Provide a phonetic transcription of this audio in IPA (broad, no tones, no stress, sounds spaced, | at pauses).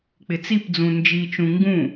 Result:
k͡p ɪ t͡s i p d͡z ũ n d͡ʒ i t͡ʃ ũ ŋ ɡ ũ